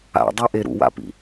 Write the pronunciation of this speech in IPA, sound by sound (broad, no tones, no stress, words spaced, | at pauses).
a̰dˤœʔe ɾṵwa̰pḭ